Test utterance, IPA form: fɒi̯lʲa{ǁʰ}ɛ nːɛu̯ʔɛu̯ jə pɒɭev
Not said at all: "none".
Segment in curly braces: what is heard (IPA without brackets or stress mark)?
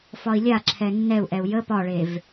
ǁʰ